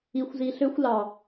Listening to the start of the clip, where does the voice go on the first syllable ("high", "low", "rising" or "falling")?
low